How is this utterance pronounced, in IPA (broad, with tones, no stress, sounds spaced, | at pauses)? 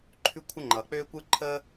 ǃʰ ʉ˥ kʷʰ ə˥ ŋ͡ǃ ʌː˩ k͡p øː˥ kʷ ɯ˥ ǃʰ əː˥